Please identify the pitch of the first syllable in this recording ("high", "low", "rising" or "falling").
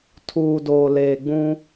low